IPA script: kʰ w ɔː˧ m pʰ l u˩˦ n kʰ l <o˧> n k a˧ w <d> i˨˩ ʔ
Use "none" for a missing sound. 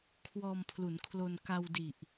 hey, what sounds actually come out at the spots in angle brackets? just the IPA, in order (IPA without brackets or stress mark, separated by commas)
o˧, d